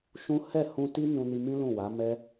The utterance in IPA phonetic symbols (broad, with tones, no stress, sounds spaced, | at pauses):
ʃ ũ˦ h ɛ˦˨ h ũ˧ t i˦ n ũ˧ n i˧ m ĩ˦ l ũ˦˨ w a˨˦ m ɛ˦